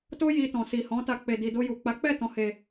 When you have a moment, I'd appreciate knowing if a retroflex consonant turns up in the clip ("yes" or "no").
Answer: no